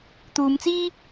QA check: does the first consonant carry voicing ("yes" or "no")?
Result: no